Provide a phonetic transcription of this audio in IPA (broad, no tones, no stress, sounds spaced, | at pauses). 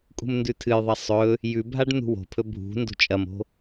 kʼ ṳ m n d ʉ tʰ ɨ j ðˤ ɐ sˤ ɵ | j ʉ bʱ a ɖ n ṳ w o̤ pʰ ɵ bʱ ṳ n d o̤ t͡ʃʼ ɐ m o̤